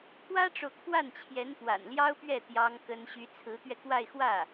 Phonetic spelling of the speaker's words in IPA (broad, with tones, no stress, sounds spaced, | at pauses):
kʰ w ä˥ ʈ͡ʂ o˨ ʊ̯ kʰ w a˥˩ n t͡ɕʰ j ɛ˧˥ n p w a̰˨˩ n l j ɑ˥ ʊ̯ p ɥ ɛ˥˩ t̪ j ɑ˥ ŋ k ə˥ n ɕ y˧˥ t͡sʰ ɹ̩˧˥ t̪ ɥ ɛ˧ k w a˥˧ ɪ̯ x w ä˥˩